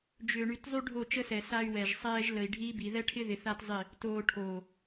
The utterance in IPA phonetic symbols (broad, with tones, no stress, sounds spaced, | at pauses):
d͡ʒ ʏː˨ ɳ y˨ t zˤ y˦ ɖʱ o˦˨ t͡ʃ ə˦ s ɛ˨ s a˦ y̯ w ɛ˨ ʒ sˤ ɛː˦ ʒ l ə˨ i̯ ɖʱ iː˦ b i˨ ð ɛ˦ ʈʰ ɪ˦ ð ɪ˨ θ a˦ t zˤ ɪ˦˨ | t oː˨ ʈʰ oː˨